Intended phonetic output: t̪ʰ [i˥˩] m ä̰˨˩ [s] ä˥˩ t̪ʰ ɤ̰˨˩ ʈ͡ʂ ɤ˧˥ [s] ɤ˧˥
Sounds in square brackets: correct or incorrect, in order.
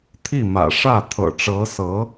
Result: correct, incorrect: ʂ, correct

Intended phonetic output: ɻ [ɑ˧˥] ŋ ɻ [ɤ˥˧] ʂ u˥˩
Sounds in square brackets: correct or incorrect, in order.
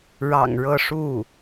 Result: incorrect: ɑ̰˨˩, correct

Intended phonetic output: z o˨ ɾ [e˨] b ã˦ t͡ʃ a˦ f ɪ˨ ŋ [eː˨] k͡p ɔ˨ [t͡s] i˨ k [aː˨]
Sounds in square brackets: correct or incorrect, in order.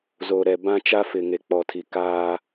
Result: incorrect: ɛ˨, incorrect: e˨, incorrect: tʰ, incorrect: aː˦

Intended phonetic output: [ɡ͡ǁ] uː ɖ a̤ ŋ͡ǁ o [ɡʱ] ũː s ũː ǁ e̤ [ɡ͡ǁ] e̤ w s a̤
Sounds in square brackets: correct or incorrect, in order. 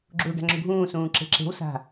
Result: correct, correct, incorrect: ǁ

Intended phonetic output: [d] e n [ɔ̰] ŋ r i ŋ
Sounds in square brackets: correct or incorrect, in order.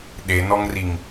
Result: incorrect: ɗ, incorrect: ɔ

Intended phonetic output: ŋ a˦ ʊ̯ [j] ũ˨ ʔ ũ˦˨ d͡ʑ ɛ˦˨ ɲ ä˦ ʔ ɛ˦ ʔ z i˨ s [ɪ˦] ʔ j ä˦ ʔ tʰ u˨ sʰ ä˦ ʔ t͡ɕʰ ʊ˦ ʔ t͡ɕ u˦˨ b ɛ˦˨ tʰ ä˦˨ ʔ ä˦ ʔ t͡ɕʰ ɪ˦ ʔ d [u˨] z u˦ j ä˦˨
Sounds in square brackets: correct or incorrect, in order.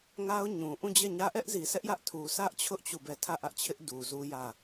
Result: incorrect: ɲ, incorrect: ɛ˦, correct

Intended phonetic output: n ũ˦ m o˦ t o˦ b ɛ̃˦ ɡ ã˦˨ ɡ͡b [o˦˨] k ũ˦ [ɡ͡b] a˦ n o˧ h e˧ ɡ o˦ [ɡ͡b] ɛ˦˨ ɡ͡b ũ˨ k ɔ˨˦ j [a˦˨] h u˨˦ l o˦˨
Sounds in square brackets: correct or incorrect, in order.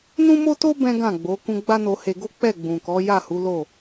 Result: incorrect: o˨˦, correct, incorrect: k͡p, correct

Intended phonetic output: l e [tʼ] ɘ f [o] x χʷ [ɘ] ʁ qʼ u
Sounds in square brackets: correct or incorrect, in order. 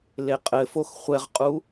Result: incorrect: qʼ, correct, incorrect: ɛ

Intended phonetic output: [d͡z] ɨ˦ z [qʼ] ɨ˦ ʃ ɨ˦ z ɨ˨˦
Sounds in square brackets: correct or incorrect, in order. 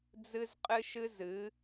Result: correct, correct

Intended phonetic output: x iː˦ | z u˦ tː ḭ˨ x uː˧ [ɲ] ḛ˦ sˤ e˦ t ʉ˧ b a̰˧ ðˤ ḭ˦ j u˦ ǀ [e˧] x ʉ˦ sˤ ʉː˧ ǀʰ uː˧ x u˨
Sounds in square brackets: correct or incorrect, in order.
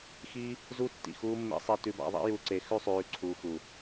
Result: incorrect: mː, correct

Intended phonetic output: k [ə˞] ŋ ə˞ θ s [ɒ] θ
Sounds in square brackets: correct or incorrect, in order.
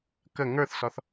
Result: incorrect: ə, correct

